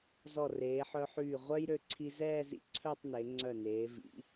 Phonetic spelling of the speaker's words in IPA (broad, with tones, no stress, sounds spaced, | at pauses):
z ɔ˧˩ r eː˩˧ ħ œ˧ ħ yː˧˩ ʁʷ œ˥ j ɾ ø˧ ǀʰ i˧ z ɛː˥˧ z ḭ˧ ǀʰ œ˥˧ tˤ n e˩˧ ŋ͡ǀ œ˧˩ n eː˩˧ v ḭ˩˧